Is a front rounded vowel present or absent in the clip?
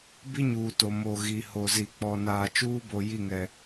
absent